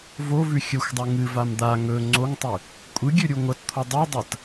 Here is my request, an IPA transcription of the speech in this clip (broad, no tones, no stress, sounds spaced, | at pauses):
v o v ʉ xʲ ɵ xʷ dˤ u ŋ ɨ v a m d̪ a ŋ ɵ ŋ͡ǀ o ŋ tˤ ɨ | kʷʼ ɨ ɡʲ ʉ ɾʲ u ŋʷ ɐ t t̪ʰ o dˤ u dˤ ɐ t